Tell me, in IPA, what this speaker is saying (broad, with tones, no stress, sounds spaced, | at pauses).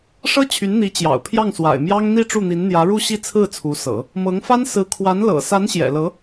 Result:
ʂ ɤ˥ t͡ɕʰ y˧˥ n n̪ i˧˥ t͡ɕ j ɑ̰˨˩ ʊ̯ pʰ j ɑ˥˩ ŋ s w a̰˨˩ ɪ̯ m j ɑ˥ ŋ n̪ i˥˧ ʈ͡ʂ u˥˩ n̪ i˧˥ n n̪ j ä˧˥ ɻ u˥˧ ɕ i˥˧ t͡sʰ ɹ̩˥˩ t͡sʰ u˧˥ s ɤ̰˨˩˦ | m ɤ˧˥ ŋ f a˥ n s ɹ̩˧˥ kʰ w a˧˥ n l ɤ̰˨˩ s a˧˥ n ɕ j ɛ̰˨˩ l ɤ˧˥